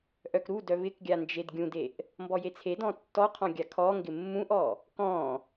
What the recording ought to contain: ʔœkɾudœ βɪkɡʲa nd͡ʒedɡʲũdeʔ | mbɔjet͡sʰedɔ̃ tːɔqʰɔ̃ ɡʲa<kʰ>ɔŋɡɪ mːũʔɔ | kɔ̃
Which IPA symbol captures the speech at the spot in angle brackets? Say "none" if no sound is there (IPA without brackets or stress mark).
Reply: kʰ